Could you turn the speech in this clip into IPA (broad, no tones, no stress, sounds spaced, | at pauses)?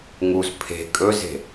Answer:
ŋ u z pʰ e̤ kʼ ɵ z e̤